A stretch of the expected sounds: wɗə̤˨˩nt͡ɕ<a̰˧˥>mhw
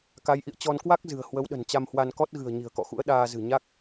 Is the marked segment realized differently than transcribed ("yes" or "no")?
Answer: yes